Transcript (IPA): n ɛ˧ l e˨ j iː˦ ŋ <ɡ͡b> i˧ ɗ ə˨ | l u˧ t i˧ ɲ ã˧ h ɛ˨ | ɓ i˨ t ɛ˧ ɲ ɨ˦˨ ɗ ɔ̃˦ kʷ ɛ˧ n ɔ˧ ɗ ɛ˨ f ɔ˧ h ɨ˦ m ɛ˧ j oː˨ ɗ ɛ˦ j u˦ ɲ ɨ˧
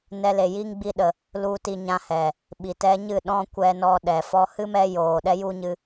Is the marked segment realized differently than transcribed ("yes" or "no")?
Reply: no